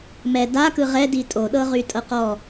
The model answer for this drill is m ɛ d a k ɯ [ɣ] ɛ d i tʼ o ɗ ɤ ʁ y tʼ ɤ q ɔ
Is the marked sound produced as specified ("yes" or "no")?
no